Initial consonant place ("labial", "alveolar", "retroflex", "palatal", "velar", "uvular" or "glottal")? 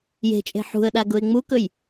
palatal